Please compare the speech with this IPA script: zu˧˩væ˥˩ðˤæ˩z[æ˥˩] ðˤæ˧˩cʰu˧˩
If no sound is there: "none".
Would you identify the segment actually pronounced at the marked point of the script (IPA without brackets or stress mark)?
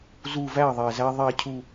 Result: æ˧